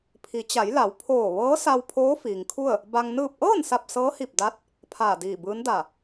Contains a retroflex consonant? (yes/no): no